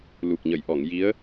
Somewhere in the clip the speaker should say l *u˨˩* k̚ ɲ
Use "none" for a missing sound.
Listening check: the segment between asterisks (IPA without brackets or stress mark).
u˨˩